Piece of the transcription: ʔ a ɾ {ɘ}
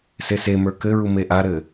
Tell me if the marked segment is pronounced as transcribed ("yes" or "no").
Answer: yes